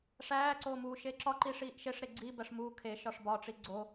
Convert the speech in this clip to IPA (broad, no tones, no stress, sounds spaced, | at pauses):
ʂ æː ǀ oː m uː ʃ e ǁ ɒ ǃ i ʂ iː ʔ ʃ e ʂ ɾ e ɡ͡ǀ i b æ ʂ m uː kʰ e ʃ ɒ ʂ b ɒ ʈ͡ʂ i ɡ͡ǀ o